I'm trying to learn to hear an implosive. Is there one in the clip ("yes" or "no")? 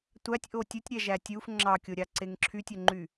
no